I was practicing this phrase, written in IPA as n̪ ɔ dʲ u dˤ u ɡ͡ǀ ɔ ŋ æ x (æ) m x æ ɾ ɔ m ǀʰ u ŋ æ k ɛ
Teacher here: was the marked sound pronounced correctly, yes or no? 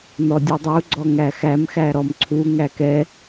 yes